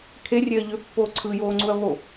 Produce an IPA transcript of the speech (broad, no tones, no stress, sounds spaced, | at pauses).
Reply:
kʰ e rʲ e ɐ̯ ʎ ø pː oː ǀʰ ɯ j oː ŋ͡ǀ u ɐ̯ β o